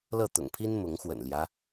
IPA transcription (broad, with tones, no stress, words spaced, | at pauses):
lɤ˥˨t̪ʊ̰˨˩ŋpʰi˦n mʊ˨˦ŋxwə̰˨˩nljä˦